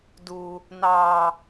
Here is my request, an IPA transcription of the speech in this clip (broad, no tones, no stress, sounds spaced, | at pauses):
d uː | n ɑː